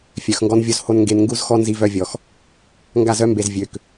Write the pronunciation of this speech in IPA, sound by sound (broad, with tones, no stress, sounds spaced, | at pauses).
fʲ œ˨ x ŋ ɡ ɔ˦ n vʲ o˦ z h o˦ n ŋ ɡ e˦ n ŋ ɡ u˦ z x ɔ˦ n z i˦ v œ˦ vʲ ɔ˨ x | ŋ ɡ a˦˨ z œ˦ m b e˨ z vʲ ø˨ k